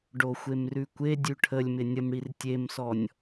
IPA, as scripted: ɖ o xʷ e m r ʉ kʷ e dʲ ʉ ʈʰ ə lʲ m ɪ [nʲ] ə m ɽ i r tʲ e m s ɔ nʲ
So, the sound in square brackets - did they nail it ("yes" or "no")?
yes